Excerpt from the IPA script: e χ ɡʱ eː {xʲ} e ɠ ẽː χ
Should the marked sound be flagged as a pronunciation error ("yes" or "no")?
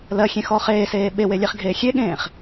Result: no